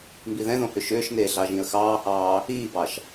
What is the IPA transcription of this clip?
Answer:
m b i ð ɛ̃ ð õ h ʏ ʃ ʏː ʃ n eː ɮ ɑ ʒ ĩ ə̯ x ɑː h ɑː | iː b ɑ ʃ

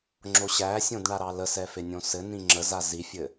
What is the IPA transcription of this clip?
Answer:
ŋ͡ǁ o ɕ æ sʲ õ d ɳ a ɾ ɑ l ə s ɛ f e nʲ õ s ɘ n ĩ ŋ͡ǁ ə z a z i fʲ ɘ

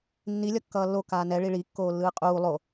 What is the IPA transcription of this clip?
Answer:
nː i lʲ ʌ kː ʌː lː o k aː n ɛ ɭ i ɭ i kː oː lː ɯː qʼ uː lˠ o

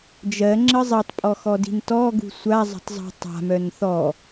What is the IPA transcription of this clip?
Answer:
d͡ʒ ɜ ŋ͡ǁ ə zˤ i tˤ pʼ ɔ x ɔ d i̤ n t ɔ ɡ ṳ sʷ a zˤ ə̤ tˤ zˤ ṳ tˤ a̤ m œ n θ ɔ

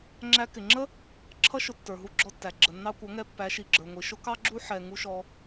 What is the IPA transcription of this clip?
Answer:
ŋ͡ǁ æ˧ k ɪ˨ ŋ͡ǁ ə˦ | ǁʰ ʌ˦ ʃ ʊ˧ tː ə˞˨ ɦ u˧ ɡ͡ǁ ɔ˧ tː æ˨ ɡ͡ǁ ə˨ nː ɑ˧ kʷ ʌ˨˦ ŋ ɛ˧ pː æ˨˦ ʃ i˨ ɡ͡ǁ ə˞˨ ŋʷ i˨ ʃ ʊ˦ k ɑ˦ ɡ͡ǁ u˦ ħ ɛ˨ ŋ u˧ ʃ ɔ˧

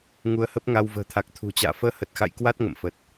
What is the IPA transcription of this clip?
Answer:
ŋ u˧ ə̯ h ə˦˥ p̚ ŋ a˧ w v ə̤ː˨˩ t̪ʰ a˨˩ k̚ t̪ʰ ṳ˨˩ t͡ɕ a̰ː˧˨ f əː˧ h ə˨˩ t̚ x a̰˧˨ j k w a˦˥ t̚ ŋ ə̰˧˨ m f ə˨˩ t̚

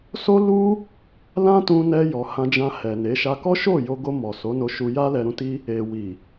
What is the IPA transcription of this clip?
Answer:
s o˦ l u˦ | l ã˦ t ũ˧ n ɛ˧ j ɔ˨ h ã˧ d͡ʒ ã˧ h ɛ˨ n e˨˦ ʃ a˧ k ɔ˦ ʃ o˦˨ j o˧ ɡ o˧ m ɔ˨ s o˨˦ n o˧ ʃ u˧ j a˦ l ɛ˧ ɾ ũ˧ t i˧ | e˨ w i˨

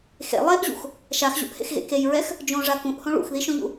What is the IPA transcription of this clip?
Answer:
x ḛ lˠ e ʔ ʑ ṵ x | ʃ a x ʑ ṵ ʔ h ḛ x ɣ ḛ k e j ɹ ɛ x | d͡ʒ õ ʐ a k ũ ʔ h õ ɭ ṵ x ð i ʃ õ ʎ ṵ

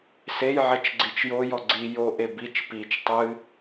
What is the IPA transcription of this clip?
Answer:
s e j ʕ ɛ t͡ʃ ɡ͡ǀ i t͡ʃ j o j ɔ ɡ͡ǀ i j o ʔ e b i t͡ʃ p i t͡ʃ tˤ ɨ

